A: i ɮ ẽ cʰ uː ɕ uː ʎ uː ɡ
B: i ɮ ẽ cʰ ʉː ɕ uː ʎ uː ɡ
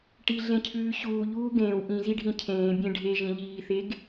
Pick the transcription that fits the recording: B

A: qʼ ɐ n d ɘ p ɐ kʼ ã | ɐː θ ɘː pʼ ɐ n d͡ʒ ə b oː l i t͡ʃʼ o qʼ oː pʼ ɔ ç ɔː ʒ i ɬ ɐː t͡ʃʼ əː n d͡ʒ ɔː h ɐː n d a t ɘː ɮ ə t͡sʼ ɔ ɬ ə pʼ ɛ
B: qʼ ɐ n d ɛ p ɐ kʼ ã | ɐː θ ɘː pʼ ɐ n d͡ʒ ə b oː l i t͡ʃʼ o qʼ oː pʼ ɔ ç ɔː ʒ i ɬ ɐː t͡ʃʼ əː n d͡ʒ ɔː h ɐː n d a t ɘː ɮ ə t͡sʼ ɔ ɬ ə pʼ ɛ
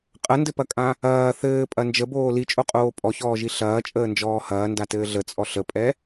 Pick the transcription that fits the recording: A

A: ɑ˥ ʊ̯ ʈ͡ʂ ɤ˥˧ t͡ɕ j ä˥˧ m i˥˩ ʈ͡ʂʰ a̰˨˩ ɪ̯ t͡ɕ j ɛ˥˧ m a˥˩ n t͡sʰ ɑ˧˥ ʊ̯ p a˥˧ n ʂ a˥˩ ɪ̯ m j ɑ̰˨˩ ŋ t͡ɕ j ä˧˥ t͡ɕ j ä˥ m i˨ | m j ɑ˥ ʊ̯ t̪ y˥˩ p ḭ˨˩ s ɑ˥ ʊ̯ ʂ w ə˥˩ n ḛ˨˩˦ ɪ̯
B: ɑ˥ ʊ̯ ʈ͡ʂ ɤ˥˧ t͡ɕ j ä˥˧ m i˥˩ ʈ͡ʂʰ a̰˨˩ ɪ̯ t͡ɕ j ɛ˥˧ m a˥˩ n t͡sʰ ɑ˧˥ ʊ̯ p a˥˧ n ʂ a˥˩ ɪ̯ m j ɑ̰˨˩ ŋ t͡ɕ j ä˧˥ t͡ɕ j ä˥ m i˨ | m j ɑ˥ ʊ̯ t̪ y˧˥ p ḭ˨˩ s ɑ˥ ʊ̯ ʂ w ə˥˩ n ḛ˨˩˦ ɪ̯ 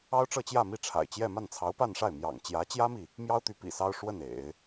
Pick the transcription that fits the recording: B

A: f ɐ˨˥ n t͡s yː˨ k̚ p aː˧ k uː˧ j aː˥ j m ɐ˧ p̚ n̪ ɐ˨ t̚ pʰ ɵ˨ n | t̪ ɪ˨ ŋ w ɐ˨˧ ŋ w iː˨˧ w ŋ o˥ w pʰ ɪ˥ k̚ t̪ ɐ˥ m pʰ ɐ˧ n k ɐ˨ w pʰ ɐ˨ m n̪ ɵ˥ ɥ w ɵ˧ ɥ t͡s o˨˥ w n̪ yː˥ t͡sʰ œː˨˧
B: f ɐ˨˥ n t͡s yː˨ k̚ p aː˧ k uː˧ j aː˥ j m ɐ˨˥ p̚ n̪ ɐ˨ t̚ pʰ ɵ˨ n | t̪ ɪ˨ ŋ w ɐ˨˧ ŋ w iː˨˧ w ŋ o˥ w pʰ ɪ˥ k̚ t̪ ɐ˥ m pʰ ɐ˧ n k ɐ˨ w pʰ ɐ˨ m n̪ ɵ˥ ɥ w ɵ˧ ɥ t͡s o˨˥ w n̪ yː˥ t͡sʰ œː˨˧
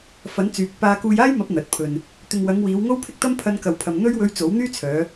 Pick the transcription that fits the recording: B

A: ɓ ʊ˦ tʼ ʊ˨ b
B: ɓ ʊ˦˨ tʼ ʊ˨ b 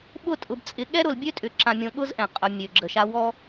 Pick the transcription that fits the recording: B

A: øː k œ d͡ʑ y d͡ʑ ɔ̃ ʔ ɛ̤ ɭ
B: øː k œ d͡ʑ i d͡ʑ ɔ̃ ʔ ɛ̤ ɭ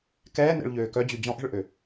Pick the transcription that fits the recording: A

